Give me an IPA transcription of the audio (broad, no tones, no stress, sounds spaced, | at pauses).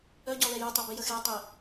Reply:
œ ɟ ɔ l ɛ j œ tˤ e b i j ə x e tˤ i